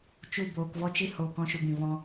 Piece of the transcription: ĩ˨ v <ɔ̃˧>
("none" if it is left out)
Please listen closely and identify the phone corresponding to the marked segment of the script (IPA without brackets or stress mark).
ɔ̃˧